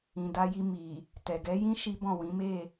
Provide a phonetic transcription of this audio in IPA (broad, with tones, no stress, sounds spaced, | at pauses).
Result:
ĩ˨ d a˧ j i˧ m i˨ | t ɛ˨ ɡ ɛ˨˦ j ĩ˦ ʃ i˦ b ɔ̃˦˨ w ĩ˨˦ m e˦˨